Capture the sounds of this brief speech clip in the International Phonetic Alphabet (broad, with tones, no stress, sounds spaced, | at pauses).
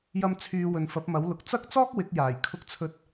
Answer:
j ɐ˧ m t͡sʰ yː˨˧ w ɵ˨ n f ɐ˨˥ p̚ m ɐ˨˥ w l ʊ˨ k̚ t͡s ɐ˥ k̚ t͡s ɔː˥ k̚ w ɪ˨˥ k̚ j aː˨˩ j kʰ ʊ˧ k̚ t͡sʰ ɵ˧ t̚